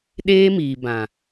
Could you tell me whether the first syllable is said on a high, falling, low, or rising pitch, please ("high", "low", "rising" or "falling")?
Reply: high